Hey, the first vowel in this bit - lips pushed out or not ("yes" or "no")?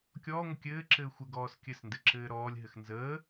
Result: yes